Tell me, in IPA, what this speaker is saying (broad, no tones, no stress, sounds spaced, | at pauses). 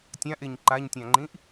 tʲ ã ʔ e ɲ ǃ a ɲ tʲ ã ŋ͡ǃ ĩ ʔ